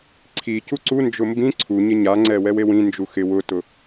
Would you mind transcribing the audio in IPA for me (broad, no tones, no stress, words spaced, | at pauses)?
ǀʰi cuǀu nd͡ʒʊmbĩ ǀʰu ɲɪɲaŋ͡ǀɛ wɛwewĩ nd͡ʒuxɪ wʊtʊ